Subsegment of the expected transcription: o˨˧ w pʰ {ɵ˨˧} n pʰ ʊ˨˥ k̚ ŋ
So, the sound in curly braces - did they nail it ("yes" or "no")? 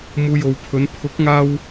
yes